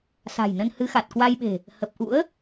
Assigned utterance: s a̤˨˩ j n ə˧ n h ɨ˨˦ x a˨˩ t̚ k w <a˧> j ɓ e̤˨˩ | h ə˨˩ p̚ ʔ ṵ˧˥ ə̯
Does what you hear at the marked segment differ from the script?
no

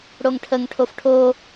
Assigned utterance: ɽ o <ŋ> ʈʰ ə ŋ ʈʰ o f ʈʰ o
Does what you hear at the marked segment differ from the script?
no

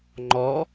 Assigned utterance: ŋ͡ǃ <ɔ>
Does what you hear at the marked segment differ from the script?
no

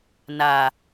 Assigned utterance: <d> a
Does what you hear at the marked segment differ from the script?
yes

